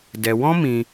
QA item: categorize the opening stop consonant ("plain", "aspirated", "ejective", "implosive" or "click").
plain